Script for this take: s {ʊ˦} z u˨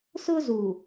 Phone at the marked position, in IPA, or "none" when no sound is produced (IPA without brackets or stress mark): ʊ˦